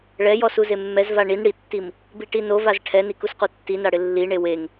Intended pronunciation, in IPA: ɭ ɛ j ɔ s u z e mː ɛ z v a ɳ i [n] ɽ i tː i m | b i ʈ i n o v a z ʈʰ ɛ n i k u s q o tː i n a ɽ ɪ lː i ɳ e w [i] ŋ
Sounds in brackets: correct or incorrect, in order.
correct, incorrect

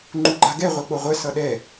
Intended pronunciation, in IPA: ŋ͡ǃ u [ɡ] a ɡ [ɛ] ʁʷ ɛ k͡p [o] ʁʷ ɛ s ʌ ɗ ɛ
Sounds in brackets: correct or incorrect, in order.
incorrect, correct, correct

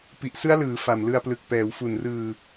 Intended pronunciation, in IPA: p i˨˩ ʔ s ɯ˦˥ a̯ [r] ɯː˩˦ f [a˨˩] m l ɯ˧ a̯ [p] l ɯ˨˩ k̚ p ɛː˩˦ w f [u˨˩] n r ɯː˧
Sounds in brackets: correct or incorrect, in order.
incorrect, correct, correct, correct

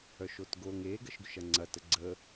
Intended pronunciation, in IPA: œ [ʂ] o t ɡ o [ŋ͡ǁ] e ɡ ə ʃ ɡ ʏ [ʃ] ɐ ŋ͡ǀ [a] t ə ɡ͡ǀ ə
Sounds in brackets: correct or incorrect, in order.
incorrect, incorrect, correct, incorrect

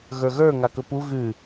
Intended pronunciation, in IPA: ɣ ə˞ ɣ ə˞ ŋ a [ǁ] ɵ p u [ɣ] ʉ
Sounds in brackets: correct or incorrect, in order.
incorrect, correct

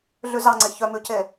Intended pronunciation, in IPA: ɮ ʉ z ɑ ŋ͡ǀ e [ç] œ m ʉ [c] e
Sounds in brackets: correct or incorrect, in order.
correct, correct

